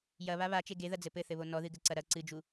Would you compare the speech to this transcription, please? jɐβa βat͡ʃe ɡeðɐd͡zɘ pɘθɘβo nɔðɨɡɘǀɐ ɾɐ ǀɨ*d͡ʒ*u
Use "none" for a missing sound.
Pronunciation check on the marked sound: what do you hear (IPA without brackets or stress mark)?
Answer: d͡ʒ